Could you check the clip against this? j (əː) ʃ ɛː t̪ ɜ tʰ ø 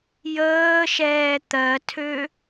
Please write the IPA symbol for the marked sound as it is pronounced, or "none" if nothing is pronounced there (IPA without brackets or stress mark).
əː